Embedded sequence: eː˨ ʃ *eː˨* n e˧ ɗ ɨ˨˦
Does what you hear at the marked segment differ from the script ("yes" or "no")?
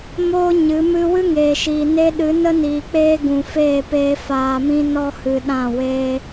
yes